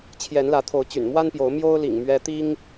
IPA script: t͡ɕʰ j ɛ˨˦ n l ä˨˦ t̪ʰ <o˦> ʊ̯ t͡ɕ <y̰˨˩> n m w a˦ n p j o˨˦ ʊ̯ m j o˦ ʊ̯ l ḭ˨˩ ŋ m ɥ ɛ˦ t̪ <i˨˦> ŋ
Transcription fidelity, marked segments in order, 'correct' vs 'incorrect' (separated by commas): incorrect, correct, incorrect